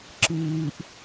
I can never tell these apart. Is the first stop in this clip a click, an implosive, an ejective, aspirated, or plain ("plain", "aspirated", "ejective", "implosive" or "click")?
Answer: click